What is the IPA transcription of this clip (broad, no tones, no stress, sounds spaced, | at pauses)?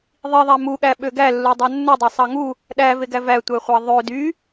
ðˤ i ðˤ æ m u ɠ æ ɓ ø ɡ æ lː u dˤ æ nː u dˤ ø sˤ ɑ ŋ u | ɗ æ v e ɡ æ v æ tʷ æ χʷ ɑ ðˤ ø d y